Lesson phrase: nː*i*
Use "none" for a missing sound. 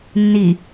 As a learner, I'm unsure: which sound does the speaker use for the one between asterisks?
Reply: i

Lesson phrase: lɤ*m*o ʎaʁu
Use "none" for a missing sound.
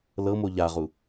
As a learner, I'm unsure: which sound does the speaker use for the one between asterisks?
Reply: m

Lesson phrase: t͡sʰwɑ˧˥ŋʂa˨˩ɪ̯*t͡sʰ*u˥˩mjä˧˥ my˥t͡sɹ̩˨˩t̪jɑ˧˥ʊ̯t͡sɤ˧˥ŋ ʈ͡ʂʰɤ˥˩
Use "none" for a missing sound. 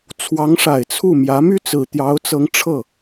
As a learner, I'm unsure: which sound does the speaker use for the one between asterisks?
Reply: t͡sʰ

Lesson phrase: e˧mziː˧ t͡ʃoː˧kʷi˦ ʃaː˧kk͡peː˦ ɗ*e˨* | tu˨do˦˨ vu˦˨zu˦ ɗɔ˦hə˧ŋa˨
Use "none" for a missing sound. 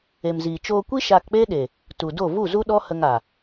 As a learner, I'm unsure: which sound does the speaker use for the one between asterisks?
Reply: e˨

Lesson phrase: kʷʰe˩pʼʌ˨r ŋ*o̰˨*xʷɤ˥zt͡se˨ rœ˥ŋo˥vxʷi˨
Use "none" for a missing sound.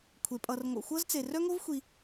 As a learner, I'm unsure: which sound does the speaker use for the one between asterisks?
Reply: o̰˨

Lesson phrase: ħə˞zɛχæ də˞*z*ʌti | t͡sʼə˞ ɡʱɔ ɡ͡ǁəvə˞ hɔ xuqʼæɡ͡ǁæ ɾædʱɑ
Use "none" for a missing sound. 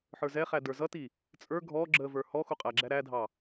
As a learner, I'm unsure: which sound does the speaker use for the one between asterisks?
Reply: z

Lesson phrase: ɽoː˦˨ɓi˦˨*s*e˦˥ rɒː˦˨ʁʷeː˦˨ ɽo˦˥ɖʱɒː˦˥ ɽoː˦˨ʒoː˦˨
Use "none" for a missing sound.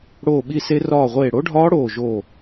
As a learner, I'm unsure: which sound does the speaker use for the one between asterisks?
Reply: s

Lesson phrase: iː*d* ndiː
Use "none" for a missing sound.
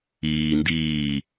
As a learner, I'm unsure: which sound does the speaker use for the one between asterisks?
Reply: none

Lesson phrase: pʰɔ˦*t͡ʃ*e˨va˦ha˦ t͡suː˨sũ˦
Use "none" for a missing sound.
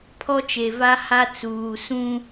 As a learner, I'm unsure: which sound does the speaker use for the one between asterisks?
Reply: t͡ʃ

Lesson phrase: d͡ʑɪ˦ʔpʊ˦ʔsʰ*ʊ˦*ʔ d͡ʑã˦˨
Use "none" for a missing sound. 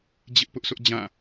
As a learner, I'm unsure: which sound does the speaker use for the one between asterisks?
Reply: ʊ˦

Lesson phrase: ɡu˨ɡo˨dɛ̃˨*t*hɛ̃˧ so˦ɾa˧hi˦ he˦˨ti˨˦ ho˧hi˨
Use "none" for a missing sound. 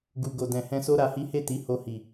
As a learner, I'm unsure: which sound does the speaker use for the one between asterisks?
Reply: none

